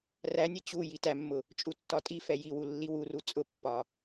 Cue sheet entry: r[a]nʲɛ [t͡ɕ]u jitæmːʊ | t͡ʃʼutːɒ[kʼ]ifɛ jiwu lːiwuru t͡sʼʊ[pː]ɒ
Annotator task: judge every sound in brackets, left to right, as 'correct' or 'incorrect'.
incorrect, correct, incorrect, correct

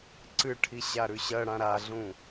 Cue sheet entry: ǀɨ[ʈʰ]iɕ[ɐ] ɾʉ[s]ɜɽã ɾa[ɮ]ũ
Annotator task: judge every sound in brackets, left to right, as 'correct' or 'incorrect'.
correct, incorrect, incorrect, correct

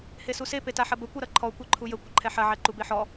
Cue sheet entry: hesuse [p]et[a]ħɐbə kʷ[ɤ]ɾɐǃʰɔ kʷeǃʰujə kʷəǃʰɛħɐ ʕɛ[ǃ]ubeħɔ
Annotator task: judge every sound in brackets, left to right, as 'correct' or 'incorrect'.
correct, correct, correct, correct

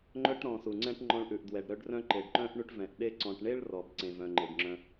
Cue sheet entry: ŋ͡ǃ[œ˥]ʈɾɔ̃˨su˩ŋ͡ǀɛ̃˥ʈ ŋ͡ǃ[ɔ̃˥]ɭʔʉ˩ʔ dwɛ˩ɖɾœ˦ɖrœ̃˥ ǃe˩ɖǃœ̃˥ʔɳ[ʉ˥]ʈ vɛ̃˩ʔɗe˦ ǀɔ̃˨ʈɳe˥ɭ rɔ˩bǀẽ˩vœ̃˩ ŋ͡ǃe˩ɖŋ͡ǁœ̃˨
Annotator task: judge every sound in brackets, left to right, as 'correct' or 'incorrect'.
correct, incorrect, incorrect

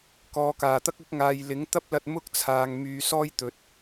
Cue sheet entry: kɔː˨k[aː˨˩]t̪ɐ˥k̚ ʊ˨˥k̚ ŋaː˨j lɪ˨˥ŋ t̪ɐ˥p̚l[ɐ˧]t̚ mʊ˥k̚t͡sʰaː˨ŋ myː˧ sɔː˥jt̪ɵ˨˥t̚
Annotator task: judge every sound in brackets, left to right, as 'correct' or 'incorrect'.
correct, correct

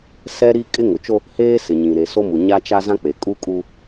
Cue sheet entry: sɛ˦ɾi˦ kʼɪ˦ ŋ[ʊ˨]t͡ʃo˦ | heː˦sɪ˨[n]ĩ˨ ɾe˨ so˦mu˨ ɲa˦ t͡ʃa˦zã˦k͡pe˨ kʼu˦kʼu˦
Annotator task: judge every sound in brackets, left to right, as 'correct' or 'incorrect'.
correct, incorrect

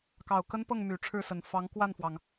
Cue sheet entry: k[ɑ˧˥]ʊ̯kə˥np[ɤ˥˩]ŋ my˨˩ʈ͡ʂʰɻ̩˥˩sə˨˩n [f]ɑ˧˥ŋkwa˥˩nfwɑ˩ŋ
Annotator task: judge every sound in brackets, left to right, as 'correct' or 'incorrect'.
incorrect, correct, correct

